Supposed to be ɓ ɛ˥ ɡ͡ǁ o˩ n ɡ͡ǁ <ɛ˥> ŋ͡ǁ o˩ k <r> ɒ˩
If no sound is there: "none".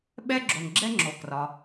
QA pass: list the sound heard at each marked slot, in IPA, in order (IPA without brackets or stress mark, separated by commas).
ɛ˥, r